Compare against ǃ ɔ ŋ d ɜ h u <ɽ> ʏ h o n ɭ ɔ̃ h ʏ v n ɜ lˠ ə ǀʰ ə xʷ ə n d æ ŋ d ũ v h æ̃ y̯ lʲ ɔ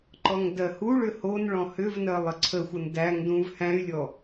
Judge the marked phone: incorrect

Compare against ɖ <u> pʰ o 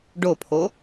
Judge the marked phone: incorrect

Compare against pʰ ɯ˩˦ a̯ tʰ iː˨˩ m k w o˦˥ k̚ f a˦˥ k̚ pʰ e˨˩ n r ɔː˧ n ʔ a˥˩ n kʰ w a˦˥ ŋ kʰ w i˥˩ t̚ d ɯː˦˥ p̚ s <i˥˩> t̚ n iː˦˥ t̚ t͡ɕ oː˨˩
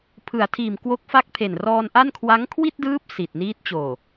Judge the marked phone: incorrect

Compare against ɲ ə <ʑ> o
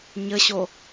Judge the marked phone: incorrect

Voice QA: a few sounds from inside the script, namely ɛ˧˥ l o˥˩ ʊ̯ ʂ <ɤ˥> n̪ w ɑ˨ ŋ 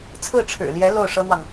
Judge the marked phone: correct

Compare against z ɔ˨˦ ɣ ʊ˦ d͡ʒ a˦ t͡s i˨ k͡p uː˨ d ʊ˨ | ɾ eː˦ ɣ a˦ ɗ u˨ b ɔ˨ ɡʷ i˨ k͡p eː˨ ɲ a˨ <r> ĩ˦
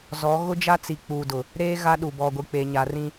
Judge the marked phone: correct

